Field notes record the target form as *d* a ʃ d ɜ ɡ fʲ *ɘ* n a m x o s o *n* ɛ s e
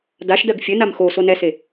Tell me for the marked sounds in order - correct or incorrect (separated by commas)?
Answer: correct, correct, correct